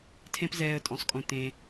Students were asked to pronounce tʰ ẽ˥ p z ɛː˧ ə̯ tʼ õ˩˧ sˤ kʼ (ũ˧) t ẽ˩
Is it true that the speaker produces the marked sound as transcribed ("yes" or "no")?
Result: no